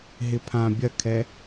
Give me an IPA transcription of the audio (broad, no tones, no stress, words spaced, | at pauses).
ɦɪpʰã bʲɐkʰɛ